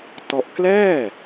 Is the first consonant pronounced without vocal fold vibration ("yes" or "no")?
yes